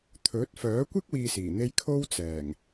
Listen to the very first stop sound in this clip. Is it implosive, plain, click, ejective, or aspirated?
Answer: aspirated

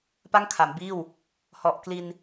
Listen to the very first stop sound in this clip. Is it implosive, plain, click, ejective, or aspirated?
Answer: plain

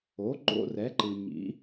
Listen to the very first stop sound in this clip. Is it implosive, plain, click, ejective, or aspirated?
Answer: click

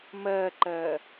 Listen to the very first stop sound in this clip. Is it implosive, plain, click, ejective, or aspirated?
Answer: click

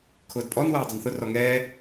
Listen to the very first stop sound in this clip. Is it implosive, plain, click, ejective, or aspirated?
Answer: aspirated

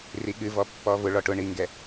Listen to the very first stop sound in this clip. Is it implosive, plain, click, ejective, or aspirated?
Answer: implosive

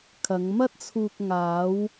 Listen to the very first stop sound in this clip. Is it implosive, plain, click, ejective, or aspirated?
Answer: aspirated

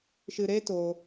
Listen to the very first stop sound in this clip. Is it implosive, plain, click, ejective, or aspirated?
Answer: plain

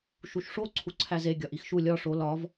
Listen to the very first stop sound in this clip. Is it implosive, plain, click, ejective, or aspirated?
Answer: click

